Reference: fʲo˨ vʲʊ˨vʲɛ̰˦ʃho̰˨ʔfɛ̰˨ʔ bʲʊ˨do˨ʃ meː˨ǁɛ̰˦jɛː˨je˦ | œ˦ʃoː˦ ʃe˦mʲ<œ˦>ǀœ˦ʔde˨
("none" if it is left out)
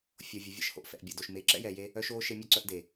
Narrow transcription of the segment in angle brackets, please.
œ˦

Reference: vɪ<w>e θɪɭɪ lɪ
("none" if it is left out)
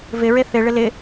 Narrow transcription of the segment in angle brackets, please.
ɹ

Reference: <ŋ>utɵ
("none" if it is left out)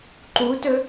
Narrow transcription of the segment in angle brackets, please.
ǃ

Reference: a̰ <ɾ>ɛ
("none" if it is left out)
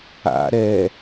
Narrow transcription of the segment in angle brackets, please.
ɾ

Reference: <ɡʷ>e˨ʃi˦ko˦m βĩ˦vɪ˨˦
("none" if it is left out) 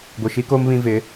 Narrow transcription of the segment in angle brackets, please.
ɡʷ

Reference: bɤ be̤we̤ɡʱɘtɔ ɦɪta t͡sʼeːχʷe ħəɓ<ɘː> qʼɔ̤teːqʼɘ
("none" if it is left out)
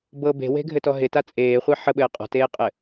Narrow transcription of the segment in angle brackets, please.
ɘː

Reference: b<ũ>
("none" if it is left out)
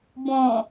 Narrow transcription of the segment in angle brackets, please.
õ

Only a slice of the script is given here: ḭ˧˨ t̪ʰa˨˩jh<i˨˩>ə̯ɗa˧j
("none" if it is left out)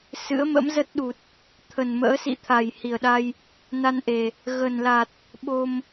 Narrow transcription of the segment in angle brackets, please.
i˨˩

